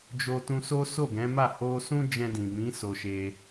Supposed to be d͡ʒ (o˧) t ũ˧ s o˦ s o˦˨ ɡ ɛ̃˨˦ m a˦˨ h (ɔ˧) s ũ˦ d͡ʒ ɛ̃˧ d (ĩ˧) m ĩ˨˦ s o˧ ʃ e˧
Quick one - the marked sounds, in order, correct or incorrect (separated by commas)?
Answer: correct, incorrect, incorrect